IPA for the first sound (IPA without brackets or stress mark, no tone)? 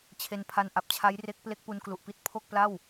t͡ɕʰ